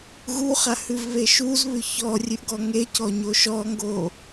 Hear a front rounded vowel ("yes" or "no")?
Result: no